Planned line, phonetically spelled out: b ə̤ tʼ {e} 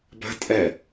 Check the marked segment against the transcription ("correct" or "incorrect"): incorrect